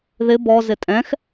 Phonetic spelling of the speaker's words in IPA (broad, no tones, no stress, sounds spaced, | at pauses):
ð ɪ b ɔ z ɪ tʼ ɛ̃ x